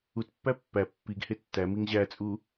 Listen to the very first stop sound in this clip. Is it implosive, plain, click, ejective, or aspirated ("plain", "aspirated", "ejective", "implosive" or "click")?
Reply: plain